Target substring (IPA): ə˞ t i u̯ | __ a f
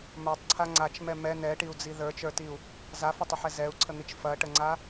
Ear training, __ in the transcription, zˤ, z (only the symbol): z